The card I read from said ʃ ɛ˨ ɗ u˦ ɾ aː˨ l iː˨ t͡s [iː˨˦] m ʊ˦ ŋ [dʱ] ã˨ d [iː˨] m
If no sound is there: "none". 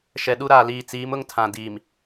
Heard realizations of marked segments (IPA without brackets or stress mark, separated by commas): iː˨˦, tʰ, iː˨